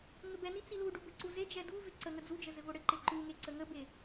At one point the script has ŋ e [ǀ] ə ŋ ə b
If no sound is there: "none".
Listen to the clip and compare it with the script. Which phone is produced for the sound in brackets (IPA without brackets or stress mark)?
ǀ